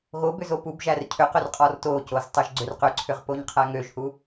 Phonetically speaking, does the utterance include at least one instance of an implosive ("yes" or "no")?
no